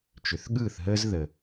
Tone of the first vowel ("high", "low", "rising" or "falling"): low